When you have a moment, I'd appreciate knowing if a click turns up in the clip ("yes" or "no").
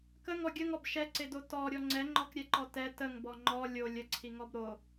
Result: yes